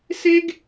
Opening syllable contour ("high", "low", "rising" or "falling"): high